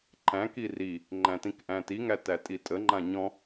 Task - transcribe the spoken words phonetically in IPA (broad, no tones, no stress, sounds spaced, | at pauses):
ǃ æ̃ k i r i | ŋ͡ǃ æ̃ t ĩ k ʔ æ̃ t i ŋ æ t æ tʼ i tʼ ə ŋ͡ǃ ã ɲ ɔ̃